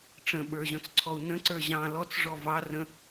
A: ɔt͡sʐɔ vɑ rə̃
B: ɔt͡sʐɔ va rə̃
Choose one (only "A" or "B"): A